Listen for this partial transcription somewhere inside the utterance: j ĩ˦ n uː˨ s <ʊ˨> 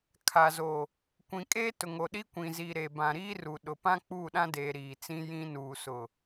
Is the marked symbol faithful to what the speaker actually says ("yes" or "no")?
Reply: yes